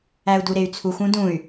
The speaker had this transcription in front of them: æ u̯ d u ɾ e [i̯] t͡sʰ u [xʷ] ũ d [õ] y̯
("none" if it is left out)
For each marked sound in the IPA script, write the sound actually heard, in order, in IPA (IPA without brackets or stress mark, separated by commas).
y̯, xʷ, ũ